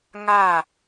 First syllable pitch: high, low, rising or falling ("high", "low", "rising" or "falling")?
falling